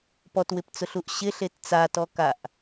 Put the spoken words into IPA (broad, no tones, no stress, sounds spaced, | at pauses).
p ɔ t w ɪ p t͡s ʊ ɬ u ʔ ɕ ɪ ɬ e t t͡s a t ɔ k a ʔ